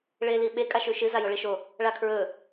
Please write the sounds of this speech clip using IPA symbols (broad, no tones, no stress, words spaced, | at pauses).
ɭeliɓe kʼaʃʉʃɨ zajoɭiʃo | ɭakʰɹɵ